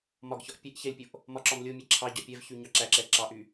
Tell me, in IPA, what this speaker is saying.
m ɒ ɡ ç ɒ ʔ pʲ ɛ ʔ ç ɛ lʲ pʲ o ʔ | m ɒ ǁ ɒ m lʲ o mʲ ɛ ǁʰ ɑ ɟ ɒ pʲ ɛ v ç y ɲ ɑ ǁ æ ǁ ɛ ǁ ɑ ʔ y

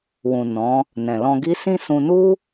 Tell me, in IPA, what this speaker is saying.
w ũ˨ n ɔ̃˨˦ | n ɛ̃˨ l ɔ̃˧ ɡ i˦ s ĩ˦ s ũ˧ n u˦

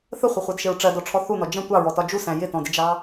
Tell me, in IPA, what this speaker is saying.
θ ə χʷ ɪ χʷ ɛ d ʃ ɪ ɹ ʈ͡ʂ ɜ d ɔ ʈ͡ʂʰ ɔ θ u n ɔ d͡ʒ ə̃ tʷ ɑ ɹ ɔ t ɒ d͡ʒ u s æ̃ j ɪ t ɔ̃ d ɪ d͡ʒ ɑ

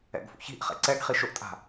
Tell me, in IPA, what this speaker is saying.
ɛ̰ ɡ f ṵ ç i̤ ʔ χ ɛ̰ ǀ ɛ ɡ χ i ʃ ʊ ʔ tʼ a̤

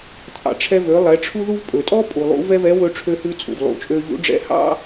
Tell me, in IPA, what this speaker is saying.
t͡sʼ ɑ̰˩ ʈ͡ʂʰ ɛ˧ v ø˩˧ lˠ ɛ˩˧ ʈ͡ʂʰ u˥ ð u˥ v pʼ ɵ˩ tʼ ɔ˥ pʼ u˩ lˠ ṵ˧˥ v ɛ˥ v ɛ˧˥ w ɵ˥ ʈ͡ʂʰ ø˥ h ʉ˥ t͡sʼ ṵ˩ v lˠ ṵ˩˧ t͡ʃʼ ø˧ ʎ ṵ˧˥ ɖ͡ʐ ɛ̰˧˥ h ɑ̰˥

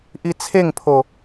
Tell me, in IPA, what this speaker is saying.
ʔ i t͡sʰ e ŋ pʰ o

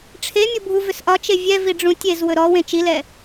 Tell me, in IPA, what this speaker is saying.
ʈ͡ʂʰ e mʲ o bʱ u v ʏ s ʔ ɒ t͡ʃ e vʲ ɛ v i ɖ͡ʐ ũ tʲ e z w ɵ ɾ ɔ w ẽ t͡ʃ i l ɛ

